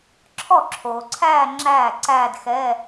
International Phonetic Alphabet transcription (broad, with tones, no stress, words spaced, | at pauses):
ǁʰɔ˥˩ǁʰoː˩ǀʰæː˥˧ ŋ͡ǁæː˥˩ǀæː˥˧dxɛː˧˥˧